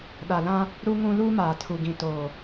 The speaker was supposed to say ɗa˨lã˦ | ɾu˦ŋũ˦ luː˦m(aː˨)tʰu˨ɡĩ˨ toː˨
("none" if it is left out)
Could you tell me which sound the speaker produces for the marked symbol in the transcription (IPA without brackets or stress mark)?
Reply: aː˨